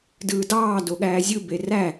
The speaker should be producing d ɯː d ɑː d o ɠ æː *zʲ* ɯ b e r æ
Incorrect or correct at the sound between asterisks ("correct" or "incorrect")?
correct